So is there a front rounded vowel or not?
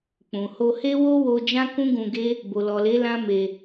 no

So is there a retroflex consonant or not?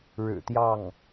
yes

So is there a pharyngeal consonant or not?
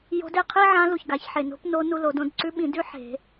yes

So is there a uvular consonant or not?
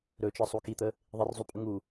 no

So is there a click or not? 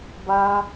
no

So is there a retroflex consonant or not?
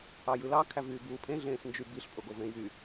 no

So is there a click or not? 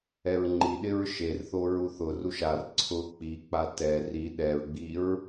yes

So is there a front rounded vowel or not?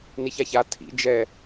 no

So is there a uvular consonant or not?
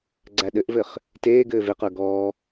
yes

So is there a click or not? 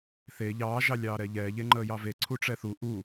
yes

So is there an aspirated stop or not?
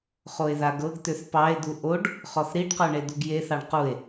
no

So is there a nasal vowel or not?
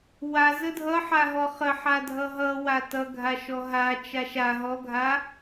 no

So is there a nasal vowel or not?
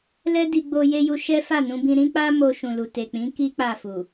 yes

